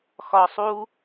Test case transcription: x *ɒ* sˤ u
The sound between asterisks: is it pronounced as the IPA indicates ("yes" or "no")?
yes